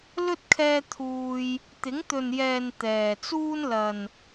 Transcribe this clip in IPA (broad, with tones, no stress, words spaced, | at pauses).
lɵ˥t̚ kʰɛː˥ t̪ʰuː˧j | t̪ɪ˨˥ŋt̪ɵ˨njɛː˨n t̪ɛː˨ t͡suː˥nlɐ˨n